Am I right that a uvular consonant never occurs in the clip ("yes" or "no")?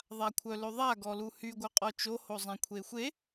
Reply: no